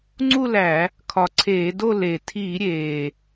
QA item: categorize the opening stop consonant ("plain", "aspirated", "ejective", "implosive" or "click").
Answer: click